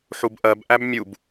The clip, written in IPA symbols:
ħ u b ʔ ɜ b ʔ æ b mʲ u b

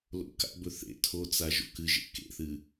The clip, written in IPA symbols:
l o̰ k a̰ b ɵ θ ḛ tʰ o t͡s a ʒ o̰ k ɨ ʒ ḛ k ḛ θ ɨ

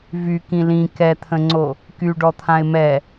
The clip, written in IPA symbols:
v y k ĩ l ĩ k ɛ t̪ʰ ə̃ ŋ͡ǀ o | k y ɖ ɔ t̪ʰ ã ɪ̯ m ɛ

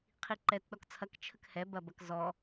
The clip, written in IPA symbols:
qʰ i ǃ ɛ t ɗ ɔ k t͡sʰ ɐ k t͡ʃʰ ə k h ɛ b ɐ b ɐ k z ɔ

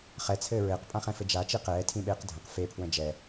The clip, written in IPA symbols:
χ ɛ t͡sʰ ɘː ɹ ɘː q pʼ ã χ ɛ̃ f ɘ d͡ʒ a t͡ʃ i q ɛː tʰ ĩ ɓ eː q dʱ ə̃ q f e pʰ w ə̃ d͡ʒ ɛ

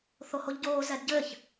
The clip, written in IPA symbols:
θ o h o ʎ ɟ oː z ɛ d ɟ ɘː ç

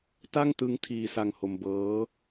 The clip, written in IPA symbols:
t a˥˩ ŋ t ɯ˦˥ ŋ tʰ iː˧ s a˧ ŋ h o˧ m b ɤː˦˥

